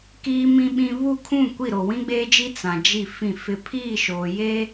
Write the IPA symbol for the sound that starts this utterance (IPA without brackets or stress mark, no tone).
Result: k